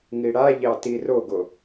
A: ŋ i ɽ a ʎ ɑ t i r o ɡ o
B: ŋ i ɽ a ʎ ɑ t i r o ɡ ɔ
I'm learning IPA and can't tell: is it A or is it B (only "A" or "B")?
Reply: A